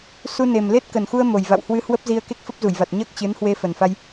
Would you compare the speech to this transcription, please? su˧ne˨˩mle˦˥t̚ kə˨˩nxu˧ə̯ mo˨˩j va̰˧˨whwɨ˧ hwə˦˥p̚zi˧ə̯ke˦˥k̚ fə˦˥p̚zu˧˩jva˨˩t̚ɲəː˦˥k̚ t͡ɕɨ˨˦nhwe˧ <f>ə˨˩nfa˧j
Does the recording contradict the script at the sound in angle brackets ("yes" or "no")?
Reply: no